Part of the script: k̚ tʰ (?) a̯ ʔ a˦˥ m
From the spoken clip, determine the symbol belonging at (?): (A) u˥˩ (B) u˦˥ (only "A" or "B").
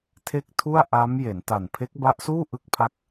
A